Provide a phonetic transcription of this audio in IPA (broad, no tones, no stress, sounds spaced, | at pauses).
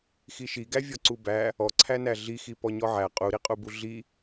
x i ʃ i ɡ æ vʲ ɔ ǀ u b æ | ɔ ǀʰ æ n æ ɮ i x i p ɔ ɲ ɔ ʕ æ qʼ u ɾ i qʼ u b u ɮ i